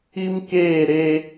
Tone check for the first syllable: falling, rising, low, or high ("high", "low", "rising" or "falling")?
high